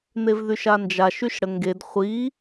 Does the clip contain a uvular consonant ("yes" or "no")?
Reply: yes